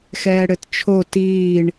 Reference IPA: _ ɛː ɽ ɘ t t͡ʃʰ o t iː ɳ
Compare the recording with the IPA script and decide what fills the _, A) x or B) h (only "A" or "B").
A